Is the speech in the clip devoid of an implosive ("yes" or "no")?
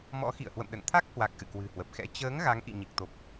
no